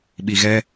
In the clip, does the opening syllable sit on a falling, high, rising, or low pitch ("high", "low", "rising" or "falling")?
low